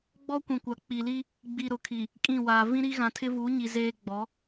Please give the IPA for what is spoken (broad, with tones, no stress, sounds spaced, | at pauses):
ɡ͡b ɔ˦ kʷ ĩ˨ kʷ a˨ k͡p i˨ l i˦ | ɡ͡b i˨ ɾ ʊ˨ kʰ i˨ | kʼ ĩ˦˨ w aː˨ v ĩ˦ ɾ i˦ ɣ ã˨ tʰ ɪ˦ v uː˨˦ ɲ i˨ z eː˦ ɡ͡b ɔ˨˦